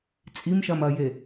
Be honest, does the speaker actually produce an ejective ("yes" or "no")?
yes